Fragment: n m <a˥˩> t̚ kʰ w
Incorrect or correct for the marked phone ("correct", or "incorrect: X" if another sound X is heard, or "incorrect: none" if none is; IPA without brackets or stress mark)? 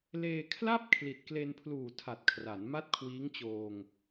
correct